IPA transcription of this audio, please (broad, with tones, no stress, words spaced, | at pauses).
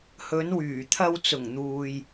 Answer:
hɵ˨˧nwyː˨˩t̪ʰɐ˧w t͡sʊ˨˩ŋn̪uː˨j